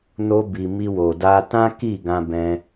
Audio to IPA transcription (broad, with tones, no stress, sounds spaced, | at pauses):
n o˧ b i˨ m i˧ w o˨ d a˧ t ã˦ k i˦˨ ɡ ã˧ b ɛ̃˧